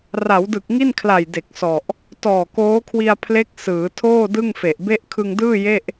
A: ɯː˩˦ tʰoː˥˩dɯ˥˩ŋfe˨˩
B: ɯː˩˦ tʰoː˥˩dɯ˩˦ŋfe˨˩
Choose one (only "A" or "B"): A